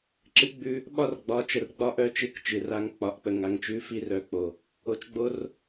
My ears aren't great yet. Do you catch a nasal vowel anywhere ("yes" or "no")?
no